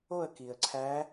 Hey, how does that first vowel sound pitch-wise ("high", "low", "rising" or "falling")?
falling